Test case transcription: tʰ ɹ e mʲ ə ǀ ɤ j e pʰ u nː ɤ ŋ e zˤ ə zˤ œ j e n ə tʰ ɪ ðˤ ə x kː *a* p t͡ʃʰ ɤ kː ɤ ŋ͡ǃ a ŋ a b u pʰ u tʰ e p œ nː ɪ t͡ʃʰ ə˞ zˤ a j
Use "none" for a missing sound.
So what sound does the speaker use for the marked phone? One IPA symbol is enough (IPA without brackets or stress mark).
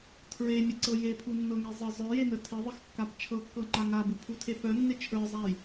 a